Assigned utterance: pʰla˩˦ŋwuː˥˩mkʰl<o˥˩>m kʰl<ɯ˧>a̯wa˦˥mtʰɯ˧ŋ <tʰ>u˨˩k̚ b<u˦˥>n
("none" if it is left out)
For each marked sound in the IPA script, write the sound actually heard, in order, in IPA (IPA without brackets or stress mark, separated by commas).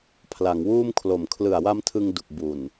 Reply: o˨˩, ɯ˨˩, d, u˨˩